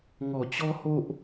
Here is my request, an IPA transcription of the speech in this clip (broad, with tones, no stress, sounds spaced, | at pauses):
ŋ ɔ˨˩ t͡ɕ ɔ˦ h o˦ ʔ